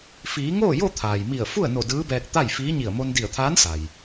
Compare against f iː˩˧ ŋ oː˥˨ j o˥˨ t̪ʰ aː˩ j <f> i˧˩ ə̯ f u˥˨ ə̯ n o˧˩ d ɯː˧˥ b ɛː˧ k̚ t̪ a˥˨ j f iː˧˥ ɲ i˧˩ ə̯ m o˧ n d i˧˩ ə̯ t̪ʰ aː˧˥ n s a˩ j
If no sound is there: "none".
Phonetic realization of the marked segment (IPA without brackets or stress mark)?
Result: m